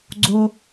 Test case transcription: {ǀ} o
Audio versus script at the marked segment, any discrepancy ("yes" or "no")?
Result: yes